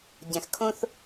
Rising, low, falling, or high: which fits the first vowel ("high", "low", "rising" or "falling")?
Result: low